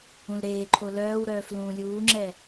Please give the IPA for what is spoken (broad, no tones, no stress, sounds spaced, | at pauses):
ũ l ɾ eː ǃʰ o l œː w ɾ œː f l ũː lʲ uː ŋ͡ǁ ɛ